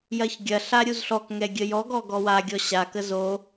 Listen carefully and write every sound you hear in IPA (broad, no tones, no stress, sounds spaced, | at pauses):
j ɐ ç ɡʲ ɐ ɬ a ɾʲ u z ɬ ɔ k ŋ ɛ ɡʲ ə j ɔ ɡ ɔ ɡ ɔ w a ɡʲ ɔ ɕ a k ə z o